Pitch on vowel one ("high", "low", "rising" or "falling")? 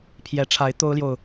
rising